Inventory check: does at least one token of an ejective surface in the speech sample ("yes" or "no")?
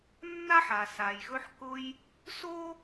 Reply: no